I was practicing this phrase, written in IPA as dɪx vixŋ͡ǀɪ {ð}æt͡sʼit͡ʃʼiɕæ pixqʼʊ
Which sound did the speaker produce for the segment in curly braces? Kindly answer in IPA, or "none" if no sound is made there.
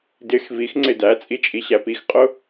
d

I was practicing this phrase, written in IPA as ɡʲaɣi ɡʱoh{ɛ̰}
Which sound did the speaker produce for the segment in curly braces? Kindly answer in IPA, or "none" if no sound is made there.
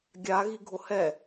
ɛ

